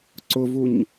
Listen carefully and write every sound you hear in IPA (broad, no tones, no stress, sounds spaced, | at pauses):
ǀ ʊ v u ɲ